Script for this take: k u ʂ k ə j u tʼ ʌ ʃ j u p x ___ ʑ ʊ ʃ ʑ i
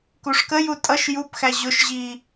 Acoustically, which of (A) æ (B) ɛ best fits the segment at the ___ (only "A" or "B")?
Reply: A